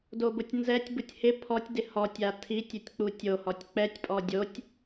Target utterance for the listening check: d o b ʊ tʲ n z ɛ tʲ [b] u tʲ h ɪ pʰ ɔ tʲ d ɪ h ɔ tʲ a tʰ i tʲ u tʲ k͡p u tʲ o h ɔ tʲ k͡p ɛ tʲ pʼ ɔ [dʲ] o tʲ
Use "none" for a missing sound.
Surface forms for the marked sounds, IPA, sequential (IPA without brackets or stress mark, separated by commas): b, dʲ